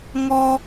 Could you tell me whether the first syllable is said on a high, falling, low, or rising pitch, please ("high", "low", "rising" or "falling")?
high